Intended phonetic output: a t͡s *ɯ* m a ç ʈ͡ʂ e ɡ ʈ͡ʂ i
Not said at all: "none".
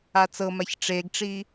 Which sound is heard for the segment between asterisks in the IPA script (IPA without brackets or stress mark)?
ɤ